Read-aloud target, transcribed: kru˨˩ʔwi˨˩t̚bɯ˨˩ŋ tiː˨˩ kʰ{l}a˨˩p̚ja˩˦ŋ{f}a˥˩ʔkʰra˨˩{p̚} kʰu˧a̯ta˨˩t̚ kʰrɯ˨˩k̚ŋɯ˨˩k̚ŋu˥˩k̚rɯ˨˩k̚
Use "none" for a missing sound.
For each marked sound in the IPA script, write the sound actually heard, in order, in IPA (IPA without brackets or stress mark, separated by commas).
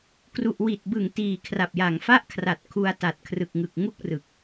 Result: r, f, t̚